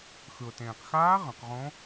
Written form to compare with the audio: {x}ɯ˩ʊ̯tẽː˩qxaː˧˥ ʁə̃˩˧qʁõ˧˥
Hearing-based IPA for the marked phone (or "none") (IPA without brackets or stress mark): x